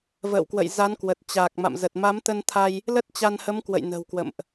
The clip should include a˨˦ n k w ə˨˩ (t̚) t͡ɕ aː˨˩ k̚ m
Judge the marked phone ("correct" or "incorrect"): correct